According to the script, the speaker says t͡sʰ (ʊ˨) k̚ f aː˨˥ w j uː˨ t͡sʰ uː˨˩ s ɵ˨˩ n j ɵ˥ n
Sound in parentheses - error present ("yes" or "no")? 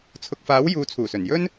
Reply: no